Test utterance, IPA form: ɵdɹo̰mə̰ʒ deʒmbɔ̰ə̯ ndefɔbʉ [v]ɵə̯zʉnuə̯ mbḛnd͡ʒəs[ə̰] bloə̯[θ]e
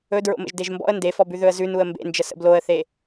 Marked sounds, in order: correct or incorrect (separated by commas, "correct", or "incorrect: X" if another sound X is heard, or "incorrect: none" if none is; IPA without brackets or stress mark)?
incorrect: ð, correct, correct